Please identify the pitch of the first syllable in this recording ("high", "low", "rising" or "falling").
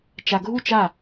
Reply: low